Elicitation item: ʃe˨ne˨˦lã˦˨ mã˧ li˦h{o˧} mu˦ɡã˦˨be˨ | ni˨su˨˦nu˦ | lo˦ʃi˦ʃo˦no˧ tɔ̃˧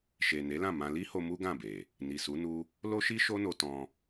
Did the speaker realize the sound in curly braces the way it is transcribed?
yes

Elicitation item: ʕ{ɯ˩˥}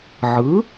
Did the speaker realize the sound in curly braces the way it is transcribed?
yes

